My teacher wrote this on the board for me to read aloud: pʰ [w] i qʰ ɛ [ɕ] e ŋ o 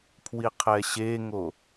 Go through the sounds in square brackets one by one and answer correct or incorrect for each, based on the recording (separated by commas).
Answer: correct, correct